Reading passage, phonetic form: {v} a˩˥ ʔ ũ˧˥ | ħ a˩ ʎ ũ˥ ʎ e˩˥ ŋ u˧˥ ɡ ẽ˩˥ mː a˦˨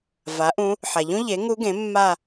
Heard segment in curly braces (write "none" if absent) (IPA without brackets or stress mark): v